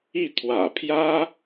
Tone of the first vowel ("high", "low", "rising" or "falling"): falling